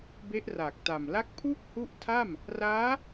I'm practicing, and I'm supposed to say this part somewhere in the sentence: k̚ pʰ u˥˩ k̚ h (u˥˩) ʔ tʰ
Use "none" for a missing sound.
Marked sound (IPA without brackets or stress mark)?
u˦˥